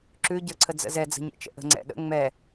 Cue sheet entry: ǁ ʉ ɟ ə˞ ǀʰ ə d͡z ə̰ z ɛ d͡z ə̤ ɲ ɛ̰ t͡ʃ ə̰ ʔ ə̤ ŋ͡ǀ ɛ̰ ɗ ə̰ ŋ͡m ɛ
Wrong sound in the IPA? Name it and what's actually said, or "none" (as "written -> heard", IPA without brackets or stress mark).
none